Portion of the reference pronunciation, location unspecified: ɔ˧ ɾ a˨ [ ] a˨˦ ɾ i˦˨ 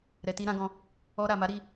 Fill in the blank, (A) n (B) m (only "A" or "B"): B